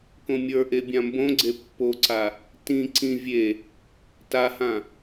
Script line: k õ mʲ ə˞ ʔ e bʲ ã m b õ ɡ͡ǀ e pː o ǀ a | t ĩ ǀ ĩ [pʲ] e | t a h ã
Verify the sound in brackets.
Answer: incorrect: vʲ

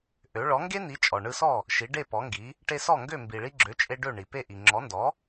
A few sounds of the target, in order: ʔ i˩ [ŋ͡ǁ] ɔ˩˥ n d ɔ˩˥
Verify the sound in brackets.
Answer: correct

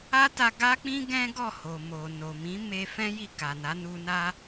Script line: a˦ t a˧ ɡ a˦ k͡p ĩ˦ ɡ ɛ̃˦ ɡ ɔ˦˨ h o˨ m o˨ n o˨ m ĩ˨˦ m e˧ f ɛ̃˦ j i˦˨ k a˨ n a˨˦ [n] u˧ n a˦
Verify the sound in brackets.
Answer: correct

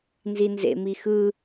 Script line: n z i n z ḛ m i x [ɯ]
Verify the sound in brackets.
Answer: correct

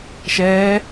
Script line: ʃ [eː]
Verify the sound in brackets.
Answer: incorrect: ɛː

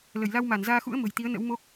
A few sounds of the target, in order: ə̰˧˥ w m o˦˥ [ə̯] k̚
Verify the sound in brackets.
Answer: incorrect: none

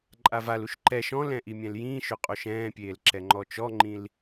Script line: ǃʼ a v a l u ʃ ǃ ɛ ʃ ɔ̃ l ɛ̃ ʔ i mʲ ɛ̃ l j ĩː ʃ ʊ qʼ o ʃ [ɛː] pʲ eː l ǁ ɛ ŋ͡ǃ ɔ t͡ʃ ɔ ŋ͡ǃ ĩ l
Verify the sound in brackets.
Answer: incorrect: ɛ̃ː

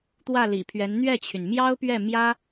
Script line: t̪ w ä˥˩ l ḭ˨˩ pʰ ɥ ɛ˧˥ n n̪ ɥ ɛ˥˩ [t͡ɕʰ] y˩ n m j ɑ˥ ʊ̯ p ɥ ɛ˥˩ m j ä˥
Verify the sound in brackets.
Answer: correct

